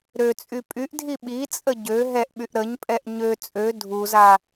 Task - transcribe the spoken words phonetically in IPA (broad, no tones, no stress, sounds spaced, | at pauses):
ɾ ø t͡sʼ y pʼ y ʔ dʱ i ɓ i t͡sʼ ə ɟ ø ɦ ɛ ʔ ɓ y ʔ ɾ ə ɲ pʼ ɛ ʔ ɲ ø t͡sʼ ø dʱ u z a